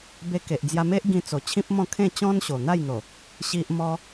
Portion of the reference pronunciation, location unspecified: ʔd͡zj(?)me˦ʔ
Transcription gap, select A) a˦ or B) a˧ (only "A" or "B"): B